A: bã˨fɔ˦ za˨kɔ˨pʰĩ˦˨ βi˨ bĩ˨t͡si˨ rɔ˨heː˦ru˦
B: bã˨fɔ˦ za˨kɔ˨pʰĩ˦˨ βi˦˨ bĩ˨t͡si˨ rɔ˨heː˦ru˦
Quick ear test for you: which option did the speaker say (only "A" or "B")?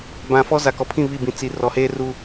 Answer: B